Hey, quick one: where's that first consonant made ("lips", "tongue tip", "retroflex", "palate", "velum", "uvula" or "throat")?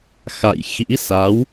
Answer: velum